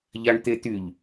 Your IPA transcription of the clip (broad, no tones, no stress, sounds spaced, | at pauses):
ʎ a ɳ t̪ e t̪ y ʎ